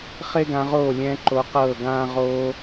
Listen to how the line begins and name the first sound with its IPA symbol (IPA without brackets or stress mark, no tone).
χ